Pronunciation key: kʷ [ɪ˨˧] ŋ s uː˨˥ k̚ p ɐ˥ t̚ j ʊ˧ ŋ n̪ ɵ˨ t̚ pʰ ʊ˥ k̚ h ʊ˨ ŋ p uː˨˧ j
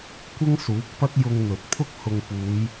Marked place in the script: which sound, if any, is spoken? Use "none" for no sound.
ɪ˥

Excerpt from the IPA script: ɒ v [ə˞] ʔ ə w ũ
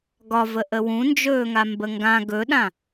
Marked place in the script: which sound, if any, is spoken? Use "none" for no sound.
ə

